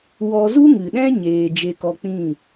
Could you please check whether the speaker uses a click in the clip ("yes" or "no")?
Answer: no